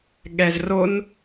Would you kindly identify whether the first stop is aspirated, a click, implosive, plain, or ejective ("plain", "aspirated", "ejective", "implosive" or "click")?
implosive